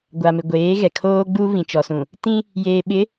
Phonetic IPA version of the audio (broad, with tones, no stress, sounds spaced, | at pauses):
ɡʷ a˨ m ɪ˨ ɡʷ eː˨˦ ɣ ɛ˨ kʰ oː˦ ɡ͡b uː˦ β ĩ˨ t͡ʃ ɔ˨ s ũ˨ | t ĩ˦ | j eː˨ ɓ ɪ˨˦